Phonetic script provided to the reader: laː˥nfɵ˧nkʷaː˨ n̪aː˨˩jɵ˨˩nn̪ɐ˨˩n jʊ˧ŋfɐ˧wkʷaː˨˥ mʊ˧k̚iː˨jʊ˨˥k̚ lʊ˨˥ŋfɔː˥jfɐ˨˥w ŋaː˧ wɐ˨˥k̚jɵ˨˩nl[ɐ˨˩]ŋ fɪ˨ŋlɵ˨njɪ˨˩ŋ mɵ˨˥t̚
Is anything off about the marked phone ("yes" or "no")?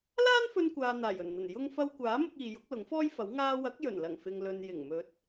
no